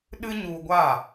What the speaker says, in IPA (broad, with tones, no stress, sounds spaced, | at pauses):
ɗ ɨ˦ ɲ u˧ ɡʷ a˦˨